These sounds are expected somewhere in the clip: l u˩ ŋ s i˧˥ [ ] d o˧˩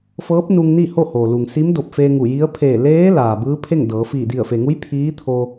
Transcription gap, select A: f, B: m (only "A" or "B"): B